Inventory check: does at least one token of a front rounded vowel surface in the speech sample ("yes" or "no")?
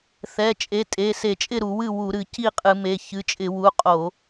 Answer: no